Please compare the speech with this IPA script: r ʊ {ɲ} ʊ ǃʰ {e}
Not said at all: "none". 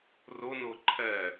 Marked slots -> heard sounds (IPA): n, ɛ

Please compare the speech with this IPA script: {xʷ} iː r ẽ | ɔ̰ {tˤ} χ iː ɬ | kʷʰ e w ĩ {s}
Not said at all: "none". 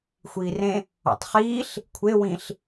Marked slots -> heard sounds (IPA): xʷ, tˤ, ɬ

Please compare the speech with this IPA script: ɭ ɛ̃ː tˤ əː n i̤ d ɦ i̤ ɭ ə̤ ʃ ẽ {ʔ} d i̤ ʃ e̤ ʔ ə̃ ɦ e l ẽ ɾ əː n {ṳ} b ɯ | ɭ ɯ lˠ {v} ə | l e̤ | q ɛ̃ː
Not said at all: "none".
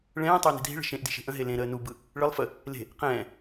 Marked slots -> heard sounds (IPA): ʔ, u, f

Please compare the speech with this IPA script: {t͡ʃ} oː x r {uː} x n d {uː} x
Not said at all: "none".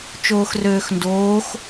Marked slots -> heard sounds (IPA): t͡ʃ, øː, oː

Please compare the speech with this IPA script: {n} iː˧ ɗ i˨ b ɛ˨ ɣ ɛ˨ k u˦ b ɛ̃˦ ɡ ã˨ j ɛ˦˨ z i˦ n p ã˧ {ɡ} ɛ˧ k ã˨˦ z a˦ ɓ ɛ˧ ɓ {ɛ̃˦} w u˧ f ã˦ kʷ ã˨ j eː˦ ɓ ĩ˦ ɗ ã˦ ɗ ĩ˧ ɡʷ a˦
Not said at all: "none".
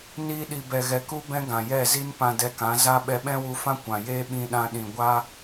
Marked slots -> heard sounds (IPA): n, d, ɛ̃˦

